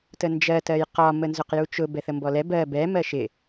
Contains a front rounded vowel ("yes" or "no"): no